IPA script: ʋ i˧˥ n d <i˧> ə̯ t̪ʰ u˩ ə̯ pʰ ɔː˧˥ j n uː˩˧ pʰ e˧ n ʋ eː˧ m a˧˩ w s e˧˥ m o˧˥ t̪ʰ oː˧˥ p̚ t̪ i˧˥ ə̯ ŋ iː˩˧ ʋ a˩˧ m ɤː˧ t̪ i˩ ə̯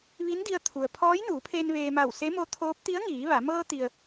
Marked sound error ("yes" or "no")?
no